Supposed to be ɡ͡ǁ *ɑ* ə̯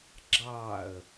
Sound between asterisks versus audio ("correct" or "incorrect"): correct